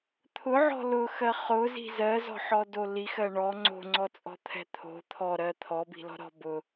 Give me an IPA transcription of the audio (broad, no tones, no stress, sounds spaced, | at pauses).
t̪ʰ ʊ ʕ ɔ̤ l ʊ x ɜ χ ʊ z i̤ z ɜ z ɔ̤ ħ ɔ d o l i x ɜ ɳ ɔ ŋ͡ǀ o̤ ŋ͡ǀ ɔ t͡sʼ ɔ̤ t̪ʰ ɛ̤ t̪ʰ o̤ t̪ʰ ɔ ɾ ɜ t̪ʰ ɔ b i̤ l ɔ̤ ɾ ɔ̤ b ʊ